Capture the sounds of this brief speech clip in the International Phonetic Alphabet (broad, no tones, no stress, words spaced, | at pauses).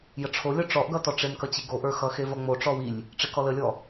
jəʈ͡ʂʰolʲɔ ʈ͡ʂɔʔɡʌtɔ ʈ͡ʂemkʌt͡ɕiɡo ʔə˞xʌxe vʌŋ͡mo ʈ͡ʂɔwilʲ | ʈ͡ʂekɔləlʲɔ